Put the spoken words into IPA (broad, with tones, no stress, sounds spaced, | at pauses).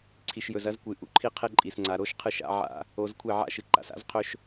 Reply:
ǀʰ i˨ ʃ j ɵ˨ z ɐ˦ z kʷ ɨ˨ ʔ ṵ˦ ǃʰ i˦ qʰ e˦ ǃʼ i˨ s ŋ͡ǀ a˨ ɾ o˦ ʃ qʰ ɨ˦˨ ʃ a̰˦ ʕ a̰˦ | o˨˦ z kʷʰ e˦˨ ʕ a̰˦ ʃ ɨ˨ ǃ a̰˨ s a̰˦ z qʰ ɵ˦ ʃ